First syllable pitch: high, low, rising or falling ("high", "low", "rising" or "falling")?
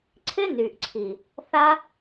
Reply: high